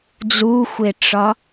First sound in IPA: d͡z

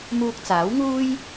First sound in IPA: m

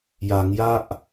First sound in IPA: j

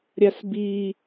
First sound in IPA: ɾʲ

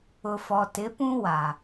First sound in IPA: ʊ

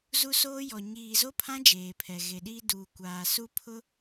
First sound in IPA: z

